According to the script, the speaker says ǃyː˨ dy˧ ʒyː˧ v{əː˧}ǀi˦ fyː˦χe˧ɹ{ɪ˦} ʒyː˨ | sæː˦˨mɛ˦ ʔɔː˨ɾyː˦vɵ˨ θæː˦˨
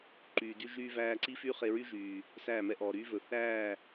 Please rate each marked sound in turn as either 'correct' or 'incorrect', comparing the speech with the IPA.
incorrect, incorrect

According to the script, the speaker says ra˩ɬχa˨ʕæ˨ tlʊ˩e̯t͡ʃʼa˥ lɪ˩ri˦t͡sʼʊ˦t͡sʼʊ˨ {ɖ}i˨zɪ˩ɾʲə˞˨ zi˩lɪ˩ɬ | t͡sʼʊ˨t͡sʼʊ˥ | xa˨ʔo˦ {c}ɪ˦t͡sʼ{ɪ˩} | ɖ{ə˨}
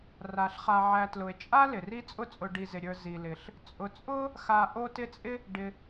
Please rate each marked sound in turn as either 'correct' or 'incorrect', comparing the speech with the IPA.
correct, incorrect, incorrect, incorrect

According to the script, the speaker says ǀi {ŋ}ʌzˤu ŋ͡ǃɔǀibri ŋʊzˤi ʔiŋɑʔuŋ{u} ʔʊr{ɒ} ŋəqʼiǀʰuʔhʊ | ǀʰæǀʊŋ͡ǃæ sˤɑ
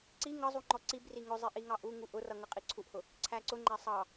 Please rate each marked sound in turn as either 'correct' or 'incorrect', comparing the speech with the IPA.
correct, correct, incorrect

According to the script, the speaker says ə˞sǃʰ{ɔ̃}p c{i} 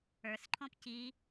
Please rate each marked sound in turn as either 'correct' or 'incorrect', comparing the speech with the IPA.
correct, correct

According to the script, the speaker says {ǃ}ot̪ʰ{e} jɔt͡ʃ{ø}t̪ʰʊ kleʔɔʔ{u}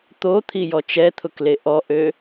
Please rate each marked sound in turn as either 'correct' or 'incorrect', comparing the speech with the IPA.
incorrect, incorrect, incorrect, incorrect

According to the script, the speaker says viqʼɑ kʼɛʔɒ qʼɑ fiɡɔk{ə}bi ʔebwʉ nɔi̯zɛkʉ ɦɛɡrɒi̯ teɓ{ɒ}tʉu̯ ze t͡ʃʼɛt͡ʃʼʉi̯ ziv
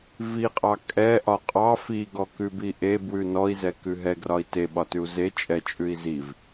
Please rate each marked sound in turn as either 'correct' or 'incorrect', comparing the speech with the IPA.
incorrect, correct

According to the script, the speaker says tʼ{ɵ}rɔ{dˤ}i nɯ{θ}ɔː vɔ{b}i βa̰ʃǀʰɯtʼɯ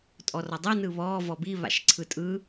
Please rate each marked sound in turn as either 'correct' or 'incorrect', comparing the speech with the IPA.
incorrect, correct, incorrect, correct

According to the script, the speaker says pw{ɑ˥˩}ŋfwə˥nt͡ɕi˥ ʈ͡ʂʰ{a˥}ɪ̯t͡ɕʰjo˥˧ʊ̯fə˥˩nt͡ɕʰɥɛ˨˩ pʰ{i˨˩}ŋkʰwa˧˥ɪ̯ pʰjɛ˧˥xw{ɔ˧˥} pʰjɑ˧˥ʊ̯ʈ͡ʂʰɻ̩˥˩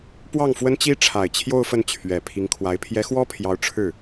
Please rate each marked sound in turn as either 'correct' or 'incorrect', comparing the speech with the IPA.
correct, incorrect, incorrect, incorrect

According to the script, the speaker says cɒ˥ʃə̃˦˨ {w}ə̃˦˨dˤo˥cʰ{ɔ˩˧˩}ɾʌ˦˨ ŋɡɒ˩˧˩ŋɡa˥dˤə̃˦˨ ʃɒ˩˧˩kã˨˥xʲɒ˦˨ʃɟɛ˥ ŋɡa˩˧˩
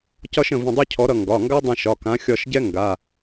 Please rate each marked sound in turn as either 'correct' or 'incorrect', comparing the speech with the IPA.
incorrect, incorrect

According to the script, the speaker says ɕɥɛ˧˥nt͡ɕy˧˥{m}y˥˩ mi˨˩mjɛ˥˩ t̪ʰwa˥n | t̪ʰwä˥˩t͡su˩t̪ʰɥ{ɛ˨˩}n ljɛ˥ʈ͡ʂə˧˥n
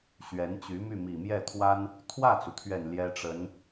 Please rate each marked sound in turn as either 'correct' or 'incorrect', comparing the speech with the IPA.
correct, correct

